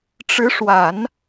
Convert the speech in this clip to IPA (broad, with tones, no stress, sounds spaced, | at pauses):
ʈ͡ʂ ɻ̩˧˥ ʂ w a˨˩˦ n